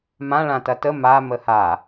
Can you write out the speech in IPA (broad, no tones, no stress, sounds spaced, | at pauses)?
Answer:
m ã ɭ ã t ɐ t ə m a m ə h a